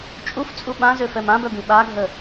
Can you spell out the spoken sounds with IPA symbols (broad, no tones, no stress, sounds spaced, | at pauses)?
t͡ʃʼ u f t͡sʼ u ɓ ã z ø f ɛ m ã b œ b ĩ ɓ a ɡʱ ə